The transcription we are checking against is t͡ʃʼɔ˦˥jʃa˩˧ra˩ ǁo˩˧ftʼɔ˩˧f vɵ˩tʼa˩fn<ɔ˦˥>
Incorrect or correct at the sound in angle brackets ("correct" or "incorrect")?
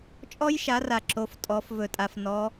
incorrect